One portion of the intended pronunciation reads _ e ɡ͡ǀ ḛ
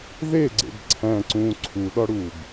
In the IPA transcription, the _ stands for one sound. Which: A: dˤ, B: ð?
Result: B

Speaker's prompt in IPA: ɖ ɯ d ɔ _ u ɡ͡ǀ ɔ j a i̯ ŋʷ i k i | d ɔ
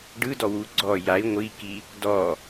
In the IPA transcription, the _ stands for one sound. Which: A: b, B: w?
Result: B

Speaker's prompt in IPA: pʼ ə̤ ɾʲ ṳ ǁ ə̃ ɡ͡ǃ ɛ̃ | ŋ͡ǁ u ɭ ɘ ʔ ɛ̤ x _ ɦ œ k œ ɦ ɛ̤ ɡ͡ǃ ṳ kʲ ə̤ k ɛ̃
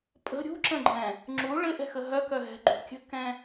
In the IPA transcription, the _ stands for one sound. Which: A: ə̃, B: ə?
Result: B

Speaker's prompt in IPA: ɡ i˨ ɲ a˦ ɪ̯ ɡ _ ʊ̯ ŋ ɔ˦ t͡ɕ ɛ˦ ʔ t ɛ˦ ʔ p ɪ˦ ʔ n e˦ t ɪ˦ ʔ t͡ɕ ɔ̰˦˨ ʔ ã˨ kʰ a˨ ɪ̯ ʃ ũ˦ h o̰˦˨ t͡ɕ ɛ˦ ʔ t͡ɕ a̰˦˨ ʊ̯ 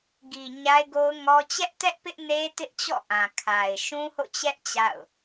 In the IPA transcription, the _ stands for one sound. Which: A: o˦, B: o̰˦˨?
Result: A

